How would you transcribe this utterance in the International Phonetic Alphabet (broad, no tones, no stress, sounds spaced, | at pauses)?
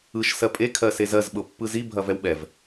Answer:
ɯ ʃ s ɜ pʼ e kʰ ɜ s e z ɜ z ɓ ɤ pː ɯ z i bʱ ɐ v ɛ w ɓ ɛ v